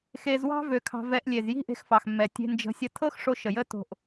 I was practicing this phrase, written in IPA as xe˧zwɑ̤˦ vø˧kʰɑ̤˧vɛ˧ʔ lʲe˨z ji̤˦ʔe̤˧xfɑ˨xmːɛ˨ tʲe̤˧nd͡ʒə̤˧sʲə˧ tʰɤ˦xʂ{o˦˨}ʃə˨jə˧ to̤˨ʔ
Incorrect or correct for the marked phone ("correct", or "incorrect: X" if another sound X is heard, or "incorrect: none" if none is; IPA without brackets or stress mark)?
incorrect: o˧